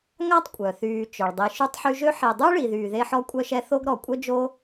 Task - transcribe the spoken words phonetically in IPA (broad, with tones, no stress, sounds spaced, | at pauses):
ŋ a˥ tˤ kʷʼ œ˩ θ yː˨ t͡ʃ œ˩ ɭ dˤ i˨ ʃ y˦ tˤ ħ y˦ ʒ ø˥ ħ i˨ dˤ y˥ ɭ i˨ ð yː˨ ð e˥ ħ ɔ˦ kʷʼ œ˦ ʃ ɛ˦ θ o˥ ɡ ɾ ɔ˩ kʷʼ œ˥ d͡ʒ o˥